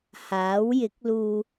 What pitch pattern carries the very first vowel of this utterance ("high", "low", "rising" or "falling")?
rising